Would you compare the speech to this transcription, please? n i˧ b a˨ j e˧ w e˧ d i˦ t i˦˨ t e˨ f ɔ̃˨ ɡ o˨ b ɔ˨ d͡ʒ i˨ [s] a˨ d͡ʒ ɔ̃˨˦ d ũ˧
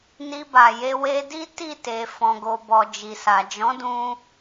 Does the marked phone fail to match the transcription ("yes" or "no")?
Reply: no